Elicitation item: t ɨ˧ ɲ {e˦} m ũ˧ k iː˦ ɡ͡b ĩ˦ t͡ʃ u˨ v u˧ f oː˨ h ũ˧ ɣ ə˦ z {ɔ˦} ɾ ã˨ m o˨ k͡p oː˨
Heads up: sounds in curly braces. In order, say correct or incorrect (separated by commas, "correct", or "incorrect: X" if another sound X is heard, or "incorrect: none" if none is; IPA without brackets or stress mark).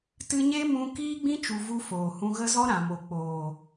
correct, correct